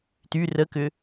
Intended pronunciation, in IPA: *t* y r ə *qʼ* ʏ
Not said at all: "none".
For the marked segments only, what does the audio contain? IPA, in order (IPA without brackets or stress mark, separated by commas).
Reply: t, k